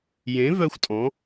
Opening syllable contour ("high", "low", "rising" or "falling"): rising